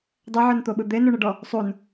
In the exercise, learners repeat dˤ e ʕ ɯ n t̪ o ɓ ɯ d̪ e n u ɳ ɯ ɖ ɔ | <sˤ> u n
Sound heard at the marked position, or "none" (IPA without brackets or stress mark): sˤ